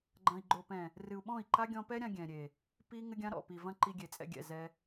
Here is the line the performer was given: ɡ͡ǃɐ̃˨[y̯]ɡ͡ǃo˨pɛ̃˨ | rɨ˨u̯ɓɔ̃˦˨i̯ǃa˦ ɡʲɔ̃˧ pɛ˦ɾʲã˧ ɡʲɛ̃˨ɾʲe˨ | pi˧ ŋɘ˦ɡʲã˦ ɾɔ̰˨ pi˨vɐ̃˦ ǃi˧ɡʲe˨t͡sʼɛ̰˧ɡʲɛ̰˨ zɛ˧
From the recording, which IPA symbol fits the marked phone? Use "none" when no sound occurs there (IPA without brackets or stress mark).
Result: i̯